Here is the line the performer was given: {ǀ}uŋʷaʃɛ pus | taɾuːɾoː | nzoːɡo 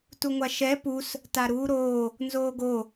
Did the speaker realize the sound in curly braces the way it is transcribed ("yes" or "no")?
no